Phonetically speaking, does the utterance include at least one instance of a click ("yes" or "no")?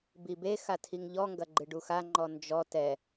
yes